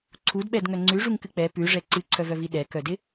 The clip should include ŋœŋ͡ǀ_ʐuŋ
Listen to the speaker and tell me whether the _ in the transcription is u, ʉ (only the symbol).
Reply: ʉ